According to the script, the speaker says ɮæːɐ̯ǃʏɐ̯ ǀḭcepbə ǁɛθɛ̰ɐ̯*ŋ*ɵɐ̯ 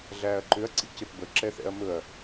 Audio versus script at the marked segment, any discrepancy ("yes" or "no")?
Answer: yes